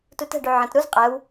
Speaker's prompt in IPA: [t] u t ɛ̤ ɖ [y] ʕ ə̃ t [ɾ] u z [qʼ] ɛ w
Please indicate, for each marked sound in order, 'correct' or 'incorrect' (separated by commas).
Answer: correct, correct, correct, correct